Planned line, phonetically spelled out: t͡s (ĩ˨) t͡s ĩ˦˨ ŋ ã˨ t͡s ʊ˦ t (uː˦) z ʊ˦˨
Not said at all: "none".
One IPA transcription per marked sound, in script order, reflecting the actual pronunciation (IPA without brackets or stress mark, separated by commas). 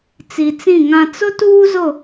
i˨, uː˦